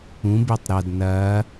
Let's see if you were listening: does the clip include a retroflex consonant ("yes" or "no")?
no